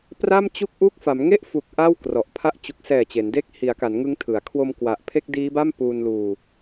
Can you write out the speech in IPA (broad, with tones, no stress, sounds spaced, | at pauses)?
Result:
p r a˥˩ m t͡ɕ u˥˩ k̚ ʔ u˥˩ k̚ f a˩˦ m ŋ e˥˩ ʔ f u˨˩ k̚ ʔ a˥˩ w k r ɔ˨˩ ʔ pʰ a˦˥ ʔ t͡ɕ u˨˩ k̚ s ɛː˨˩ t͡ɕ e˩˦ n d e˥˩ k̚ h i˩˦ a̯ k a˩˦ n ŋ ɯ˦˥ ŋ tʰ ɯ˩˦ a̯ kʰ w o˧ m k w a˨˩ ʔ pʰ e˥˩ k̚ d iː˦˥ b a˥˩ m p uː˧ n l uː˧